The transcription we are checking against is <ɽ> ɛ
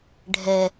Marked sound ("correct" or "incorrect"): incorrect